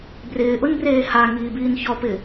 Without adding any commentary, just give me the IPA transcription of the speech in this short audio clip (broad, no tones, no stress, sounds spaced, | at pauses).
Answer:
b r ɪː ʔ ʊ n b r eː h a ŋ iː b iː n ç ɔ p ɪ